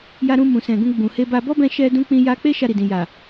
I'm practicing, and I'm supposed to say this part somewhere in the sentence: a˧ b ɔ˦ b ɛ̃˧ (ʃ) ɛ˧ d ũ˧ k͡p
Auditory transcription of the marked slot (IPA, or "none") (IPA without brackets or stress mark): ʃ